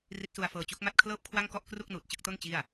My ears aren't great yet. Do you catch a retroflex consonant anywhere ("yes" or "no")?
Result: no